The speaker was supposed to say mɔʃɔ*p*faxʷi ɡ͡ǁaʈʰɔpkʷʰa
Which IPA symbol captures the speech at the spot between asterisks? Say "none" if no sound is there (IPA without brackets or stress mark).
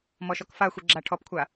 k